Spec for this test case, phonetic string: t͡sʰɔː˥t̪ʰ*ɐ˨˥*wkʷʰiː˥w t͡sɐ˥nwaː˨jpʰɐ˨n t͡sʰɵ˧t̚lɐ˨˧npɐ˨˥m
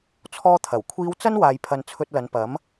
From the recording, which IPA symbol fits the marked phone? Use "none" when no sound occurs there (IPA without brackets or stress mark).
ɐ˨˩